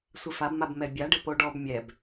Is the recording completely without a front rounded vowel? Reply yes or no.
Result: yes